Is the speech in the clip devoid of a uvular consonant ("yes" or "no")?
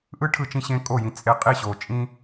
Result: no